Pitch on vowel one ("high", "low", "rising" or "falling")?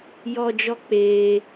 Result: high